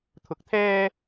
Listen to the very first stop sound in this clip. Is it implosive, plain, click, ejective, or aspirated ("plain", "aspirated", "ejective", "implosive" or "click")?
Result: aspirated